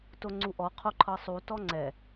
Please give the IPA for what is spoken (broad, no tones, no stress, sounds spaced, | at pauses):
t o ŋ͡ǀ u ʔ ɔ qʰ o ǃʰ ɤ sˤ u t ɔ ŋ͡ǀ ɛ